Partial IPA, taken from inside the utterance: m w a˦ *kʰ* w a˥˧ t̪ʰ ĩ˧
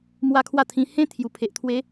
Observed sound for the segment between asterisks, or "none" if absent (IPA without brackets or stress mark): kʰ